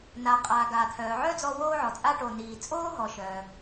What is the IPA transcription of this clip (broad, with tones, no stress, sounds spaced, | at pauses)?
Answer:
n a˩ qʼ aː˩ ɡ aː˩ t̪ʰ œː˩ ʕ œ˥ d͡z ɔ˧ w oː˧ ʕ ɔ˩ t͡sʼ a˧ ʈ o˩ n iː˩ t͡sʼ oː˥ ɦ ɔ˩ ʃ œː˩